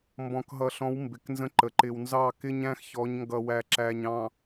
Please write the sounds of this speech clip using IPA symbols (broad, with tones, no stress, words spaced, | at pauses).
mbɔ̃˨kɦʌ˨ɬɔ̃˨˦w mbɪ˨knzə̃˦ǃə˨ ǃɪ˨wnzɑ˦˨kɪ˦ɲ æ̃˦xçɔ˨˦ɲŋɡʌ˨wæ˨ ǁæ˨ɲɑ̃˨